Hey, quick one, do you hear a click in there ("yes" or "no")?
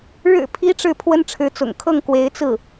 no